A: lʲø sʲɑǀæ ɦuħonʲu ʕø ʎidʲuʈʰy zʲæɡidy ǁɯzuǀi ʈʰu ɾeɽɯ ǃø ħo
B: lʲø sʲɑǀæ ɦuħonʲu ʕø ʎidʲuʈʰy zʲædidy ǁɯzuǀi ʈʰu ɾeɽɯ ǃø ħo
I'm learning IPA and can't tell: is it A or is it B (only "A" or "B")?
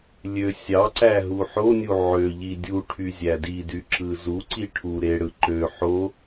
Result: B